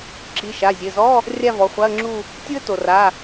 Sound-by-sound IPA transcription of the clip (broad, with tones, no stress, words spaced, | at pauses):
ǁi˩˧˩ʃa˩˧˩zʲɘ˩˧˩zɔ˧˥˧ | rʲa˥˧vɔ˩˧˩χʷa˧˥˧ə̯ŋ͡ǁu˥˧ | tʲu˥ə̯to˩ra˩˧˩